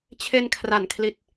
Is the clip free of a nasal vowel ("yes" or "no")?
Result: yes